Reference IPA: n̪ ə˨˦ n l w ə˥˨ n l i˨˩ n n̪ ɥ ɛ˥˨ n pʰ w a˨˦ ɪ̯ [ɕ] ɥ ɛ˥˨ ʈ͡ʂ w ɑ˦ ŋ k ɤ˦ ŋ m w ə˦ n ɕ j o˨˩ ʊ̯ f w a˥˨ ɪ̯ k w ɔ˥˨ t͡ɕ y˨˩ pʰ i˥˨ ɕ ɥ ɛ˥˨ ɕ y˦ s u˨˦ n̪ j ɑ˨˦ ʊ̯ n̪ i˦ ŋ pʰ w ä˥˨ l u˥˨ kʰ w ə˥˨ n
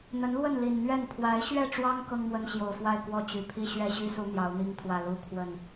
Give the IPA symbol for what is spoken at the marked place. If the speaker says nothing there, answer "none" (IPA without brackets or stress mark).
ɕ